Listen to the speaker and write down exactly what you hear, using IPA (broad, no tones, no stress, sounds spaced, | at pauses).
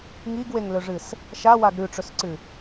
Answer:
ŋ i ɡ w e ŋ l ɵ ʐ ɨ s | ʃ a w a ɡ ɾ ʉ ʈ͡ʂ ɵ s ǀ ɨ